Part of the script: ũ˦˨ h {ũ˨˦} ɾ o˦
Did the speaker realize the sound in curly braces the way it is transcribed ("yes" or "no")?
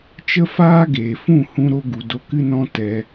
no